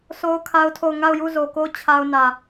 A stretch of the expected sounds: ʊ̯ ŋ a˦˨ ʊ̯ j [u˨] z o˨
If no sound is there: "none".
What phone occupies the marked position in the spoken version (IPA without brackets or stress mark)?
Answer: u˦˨